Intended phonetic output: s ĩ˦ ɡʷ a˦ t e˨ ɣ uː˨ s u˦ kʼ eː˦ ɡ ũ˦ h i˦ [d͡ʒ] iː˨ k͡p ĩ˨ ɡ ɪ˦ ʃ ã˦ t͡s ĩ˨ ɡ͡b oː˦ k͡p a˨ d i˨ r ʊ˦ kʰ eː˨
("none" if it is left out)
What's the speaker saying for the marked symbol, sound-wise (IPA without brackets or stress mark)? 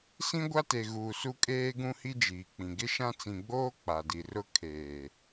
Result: d͡ʒ